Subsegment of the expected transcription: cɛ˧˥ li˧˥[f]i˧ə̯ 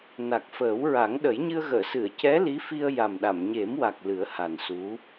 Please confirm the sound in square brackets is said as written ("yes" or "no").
yes